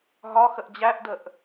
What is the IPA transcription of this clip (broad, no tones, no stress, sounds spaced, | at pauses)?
ɦ ɒ x ə ʔ d͡ʑ æ ʔ d ə ʔ